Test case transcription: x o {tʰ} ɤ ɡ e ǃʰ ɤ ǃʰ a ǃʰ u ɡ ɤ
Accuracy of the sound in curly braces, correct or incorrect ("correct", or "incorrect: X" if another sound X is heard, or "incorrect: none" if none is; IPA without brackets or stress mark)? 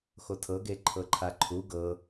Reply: correct